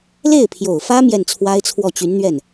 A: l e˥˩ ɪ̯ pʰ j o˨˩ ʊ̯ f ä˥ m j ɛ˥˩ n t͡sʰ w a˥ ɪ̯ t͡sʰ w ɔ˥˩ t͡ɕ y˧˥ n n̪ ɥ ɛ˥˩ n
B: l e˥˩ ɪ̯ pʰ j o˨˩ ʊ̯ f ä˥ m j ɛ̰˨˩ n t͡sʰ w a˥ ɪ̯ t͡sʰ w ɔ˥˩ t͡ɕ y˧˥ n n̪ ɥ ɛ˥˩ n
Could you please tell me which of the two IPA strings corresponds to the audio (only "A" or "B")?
A